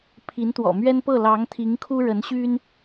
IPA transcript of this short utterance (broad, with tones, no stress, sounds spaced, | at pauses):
pʰ i˧˥ n t̪ w ɔ̰˨˩ m ɥ ɛ˥ n p ɤ˥˩ l ɑ˧˥ ŋ t̪ʰ i˧˥ ŋ kʰ u˥ ɻ ə˧˥ n ɕ y˥ n